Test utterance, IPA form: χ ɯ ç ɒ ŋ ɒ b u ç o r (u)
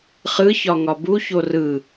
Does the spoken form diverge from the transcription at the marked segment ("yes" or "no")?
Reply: yes